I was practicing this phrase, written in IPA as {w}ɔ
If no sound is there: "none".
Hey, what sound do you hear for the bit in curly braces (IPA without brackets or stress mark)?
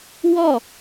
w